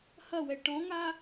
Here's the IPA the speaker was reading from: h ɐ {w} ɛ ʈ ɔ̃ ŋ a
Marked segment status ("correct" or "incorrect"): correct